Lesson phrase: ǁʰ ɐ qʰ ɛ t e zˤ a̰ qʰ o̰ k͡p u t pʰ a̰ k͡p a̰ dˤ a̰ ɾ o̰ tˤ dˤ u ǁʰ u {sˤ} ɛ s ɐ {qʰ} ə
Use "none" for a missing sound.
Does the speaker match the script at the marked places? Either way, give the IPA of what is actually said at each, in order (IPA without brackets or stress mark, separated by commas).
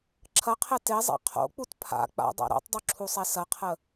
sˤ, qʰ